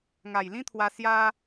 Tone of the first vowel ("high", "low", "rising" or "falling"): low